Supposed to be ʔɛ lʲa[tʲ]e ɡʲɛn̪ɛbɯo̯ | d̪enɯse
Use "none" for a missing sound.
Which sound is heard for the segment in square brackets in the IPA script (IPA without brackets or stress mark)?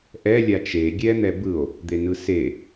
t͡ʃ